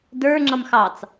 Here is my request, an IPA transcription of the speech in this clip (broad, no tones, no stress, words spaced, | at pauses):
də˞ ŋ͡ǁʌmxɑt͡s